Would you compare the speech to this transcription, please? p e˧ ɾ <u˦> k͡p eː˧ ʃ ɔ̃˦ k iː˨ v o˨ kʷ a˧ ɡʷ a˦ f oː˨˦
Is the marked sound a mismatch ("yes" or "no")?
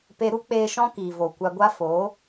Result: no